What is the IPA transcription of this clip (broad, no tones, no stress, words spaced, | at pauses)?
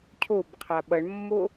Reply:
cʰobqʰa ɓʌɳmːo